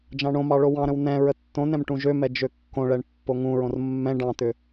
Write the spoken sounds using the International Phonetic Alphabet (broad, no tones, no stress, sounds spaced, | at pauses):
d͡ʒ ɑ̃ ɳ õ m ɑ ɭ o w ɑ̃ ɾ ə̃ w n ɛ̃ ɹ ə tː õ n ɛ̃ m ʈ ũ ʒ ø m ɛ d͡ʒ ø kː õ ɭ ɛ ɳ pː o ŋ ũ ɹ õ r mː ɛ̃ ɖ ɑ̃ t̪ ʏ